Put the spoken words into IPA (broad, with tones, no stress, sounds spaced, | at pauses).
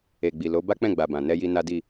e˨ ɡ͡b i˨ l o˨˦ b a˦ k͡p ɛ̃˦˨ ɡ͡b a˨ b ã˨ n ɛ˧ j i˧ n a˦ d i˦˨